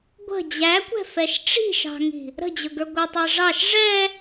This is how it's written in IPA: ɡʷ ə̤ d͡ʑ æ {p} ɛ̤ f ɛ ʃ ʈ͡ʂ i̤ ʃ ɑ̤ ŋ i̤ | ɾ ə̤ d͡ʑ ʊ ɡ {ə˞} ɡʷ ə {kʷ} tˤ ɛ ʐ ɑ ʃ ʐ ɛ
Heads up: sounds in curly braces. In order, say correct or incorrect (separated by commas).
incorrect, correct, incorrect